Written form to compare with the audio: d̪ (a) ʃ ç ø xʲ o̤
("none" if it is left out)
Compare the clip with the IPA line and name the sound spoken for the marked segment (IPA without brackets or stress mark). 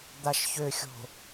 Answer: a